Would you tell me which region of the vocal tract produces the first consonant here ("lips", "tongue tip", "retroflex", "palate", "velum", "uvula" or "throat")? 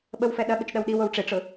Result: lips